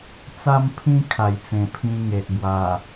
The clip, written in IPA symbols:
t͡s a˥˧ m pʰ ĩ˦ kʰ a˨˩ j t͡s ẽ˨˩ pʰ ĩ˧ ŋ e˨ ʔ b w a˨˩

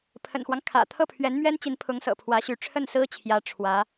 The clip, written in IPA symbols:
pʰ ə̰˨˩ n x w ɑ˦ ŋ kʰ ä̰˨˩ t̪ʰ ɤ˥˩ pʰ ɥ ɛ˧˥ n m ɥ ɛ˥ n t͡ɕ i˧˥ n pʰ ʊ˧˥ ŋ s ɤ̰˨˩ pʰ w ä˧˥ ɕ y˧˥ ʈ͡ʂʰ ə˥˩ n s ɹ̩˥ t͡ɕʰ j ä˧˥ ʈ͡ʂʰ w ä˧˥

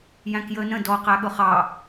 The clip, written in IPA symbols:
j æ̃ k j əː n ə̃ d ɔ q æ ɠ ʊ χ ɑ

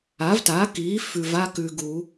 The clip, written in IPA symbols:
a˩˥ v t a˩˥ k iː˩˥ f ʉ˨ v a˥ k ʉ˨ ɡ uː˨˩˦

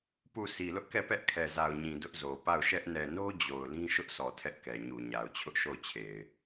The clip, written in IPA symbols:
p u˦˨ sʰ i˨ l ʊ˦ ʔ k ɛ˦˨ p ɛ˦ ʔ kʰ ɛ˨ z a˨ ʊ̯ ɲ ĩ˨ d ʊ˦ ʔ z o˨ p a˦˨ ʊ̯ ʃ ɛ˦ ʔ n ɛ˨ n o˦ d͡ʑ o˨ ʊ̯ l ĩ˦ ʃ ʊ˦ ʔ s ɔ˨ tʰ ɛ˦ ʔ k ɛ˨ ɲ u˨ ɲ a˨ ʊ̯ t͡ɕʰ ʊ˦ ʔ ʃ o˦˨ ʊ̯ t͡ɕʰ e˨ ɪ̯

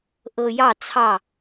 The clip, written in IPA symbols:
ʔ ɤ˨ j ɑ˦˨ t͡sʰ ɑ˦˨

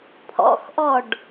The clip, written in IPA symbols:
pʰ ɔ̰ x ʔ ɔ ɖ

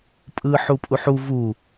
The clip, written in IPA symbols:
pʼ ɯː ħ u pʼ u ħ u v u

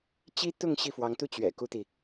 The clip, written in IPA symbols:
t͡ɕ i˥ t̪ ʊ˥˧ ŋ ɕ i˥˩ f w ɑ˧˥ ŋ t̪ u˥ t͡ɕ ɥ ɛ̰˨˩ k u˥ t̪ i˨

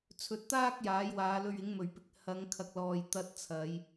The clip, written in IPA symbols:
t͡sʰ ɵ˨ t̚ t̪ aː˥ k̚ j aː˨˥ j w aː˨˧ l ɵ˧ ɥ ɪ˨˥ ŋ m ɵ˨˩ ɥ p ɪ˧ k̚ h ɐ˨˧ ŋ kʰ ɐ˨ k̚ l ɔː˨ j t̪ ɐ˧ t̚ t͡sʰ ɐ˨˧ j

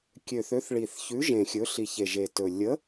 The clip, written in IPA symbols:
kʲ ø˨˩ θ ø˨˥ θ ɭ i˨˩ θ ç ʉ˨˥ ʒ ẽ˨˩ xʲ ɵ˨˥ ɬ i˨˩ ç e˨˩ ʒ e˨˩ t ɵ˨˩ lʲ ə˨˥

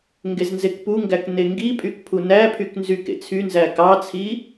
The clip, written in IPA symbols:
ŋ ɡ e z n z e k p u ŋ ɡ æ k n e ŋ ɡ i pʼ y k pʰ u n æ pʰ y k n z y k ḛ t͡sʰ y n z æ k ɑ t͡sʰ i

